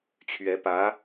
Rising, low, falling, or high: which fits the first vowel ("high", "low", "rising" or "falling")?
rising